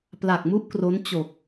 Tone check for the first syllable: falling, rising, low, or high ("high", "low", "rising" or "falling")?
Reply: low